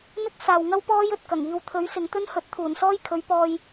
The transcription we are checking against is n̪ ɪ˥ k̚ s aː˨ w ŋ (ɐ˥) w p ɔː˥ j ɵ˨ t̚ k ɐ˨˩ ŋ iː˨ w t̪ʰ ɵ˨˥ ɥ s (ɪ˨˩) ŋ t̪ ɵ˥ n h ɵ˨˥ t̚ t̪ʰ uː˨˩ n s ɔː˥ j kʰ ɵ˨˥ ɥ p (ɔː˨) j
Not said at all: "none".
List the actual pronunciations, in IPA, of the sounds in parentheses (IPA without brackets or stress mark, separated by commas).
ɐ˥, ɪ˨˧, ɔː˧